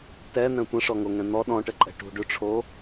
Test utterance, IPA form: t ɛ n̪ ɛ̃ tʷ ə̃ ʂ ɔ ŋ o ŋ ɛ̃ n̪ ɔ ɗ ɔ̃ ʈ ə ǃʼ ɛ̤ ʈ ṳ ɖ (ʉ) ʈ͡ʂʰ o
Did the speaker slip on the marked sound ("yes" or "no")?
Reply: no